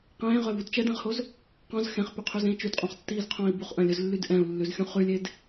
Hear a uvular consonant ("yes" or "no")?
yes